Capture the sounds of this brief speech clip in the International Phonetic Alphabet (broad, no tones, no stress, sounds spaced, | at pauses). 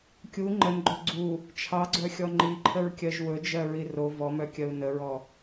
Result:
kʲ u ŋ͡ǃ ə n ɡ͡ǃ ɵ ɡ͡ǀ u | t͡ʃʰ ɑ ɡ͡ǀ œ xʲ ɔ ŋ͡ǃ i ǃʰ ə ɹ kʲ ɜ ʒ w ɵ d͡ʒ ɜ ɹ i r o v ɔ m œ kʲ ɜ u̯ n ə ɹ ɔ